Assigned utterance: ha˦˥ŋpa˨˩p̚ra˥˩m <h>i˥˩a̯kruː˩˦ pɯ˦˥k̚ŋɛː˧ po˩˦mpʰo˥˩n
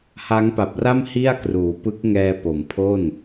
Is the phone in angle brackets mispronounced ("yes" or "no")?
no